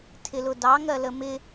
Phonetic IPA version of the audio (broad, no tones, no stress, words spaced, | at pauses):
tʰɪlʊdɑ ŋɜləmɪ